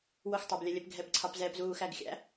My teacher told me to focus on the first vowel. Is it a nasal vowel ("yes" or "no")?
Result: no